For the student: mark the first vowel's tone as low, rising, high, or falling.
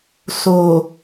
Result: low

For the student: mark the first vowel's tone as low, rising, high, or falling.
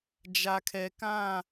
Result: low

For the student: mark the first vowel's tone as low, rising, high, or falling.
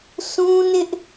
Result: high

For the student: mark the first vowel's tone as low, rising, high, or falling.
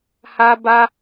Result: high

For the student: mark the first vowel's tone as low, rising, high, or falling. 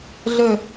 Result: falling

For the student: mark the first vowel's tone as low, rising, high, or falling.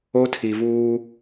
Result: high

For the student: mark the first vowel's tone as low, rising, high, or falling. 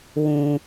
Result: low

